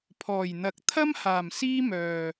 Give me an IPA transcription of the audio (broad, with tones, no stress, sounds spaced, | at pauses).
pʰ ɔː˨˩ j n̪ ɐ˨ k̚ t̪ʰ ɐ˥ m h aː˨˩ m s iː˥ m œː˨